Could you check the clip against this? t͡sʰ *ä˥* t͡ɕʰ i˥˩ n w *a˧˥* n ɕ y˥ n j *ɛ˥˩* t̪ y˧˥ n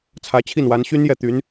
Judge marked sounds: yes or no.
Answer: no, yes, yes

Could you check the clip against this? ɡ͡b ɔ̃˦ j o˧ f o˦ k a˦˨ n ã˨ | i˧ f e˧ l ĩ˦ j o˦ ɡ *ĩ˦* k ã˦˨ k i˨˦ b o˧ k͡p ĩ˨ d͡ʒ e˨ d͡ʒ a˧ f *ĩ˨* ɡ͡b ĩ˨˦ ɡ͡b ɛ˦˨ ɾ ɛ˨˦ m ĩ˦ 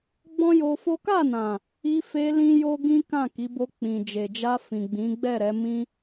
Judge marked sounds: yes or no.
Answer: yes, yes

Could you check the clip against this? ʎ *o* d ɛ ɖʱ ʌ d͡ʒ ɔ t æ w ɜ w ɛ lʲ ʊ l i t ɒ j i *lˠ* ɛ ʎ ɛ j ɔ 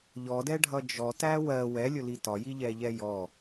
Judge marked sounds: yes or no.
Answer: no, no

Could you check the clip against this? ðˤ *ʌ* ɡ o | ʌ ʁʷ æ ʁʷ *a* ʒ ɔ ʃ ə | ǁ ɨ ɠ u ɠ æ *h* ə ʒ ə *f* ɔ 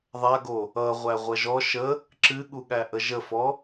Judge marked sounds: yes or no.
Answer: no, no, no, yes

